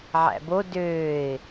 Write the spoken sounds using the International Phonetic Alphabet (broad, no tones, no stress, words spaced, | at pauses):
ʕæ̰bo døːɪ̯